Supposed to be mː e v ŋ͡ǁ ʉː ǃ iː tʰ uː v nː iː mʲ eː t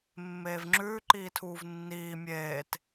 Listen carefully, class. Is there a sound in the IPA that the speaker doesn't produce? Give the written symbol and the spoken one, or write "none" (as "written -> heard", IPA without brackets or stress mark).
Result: e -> eː